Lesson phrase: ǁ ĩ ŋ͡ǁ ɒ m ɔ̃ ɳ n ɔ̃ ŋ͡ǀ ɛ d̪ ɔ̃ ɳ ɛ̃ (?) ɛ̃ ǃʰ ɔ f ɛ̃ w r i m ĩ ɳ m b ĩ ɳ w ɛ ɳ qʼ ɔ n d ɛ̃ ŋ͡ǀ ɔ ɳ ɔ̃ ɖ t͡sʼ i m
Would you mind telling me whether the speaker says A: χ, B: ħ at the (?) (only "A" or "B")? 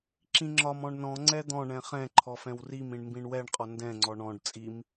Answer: A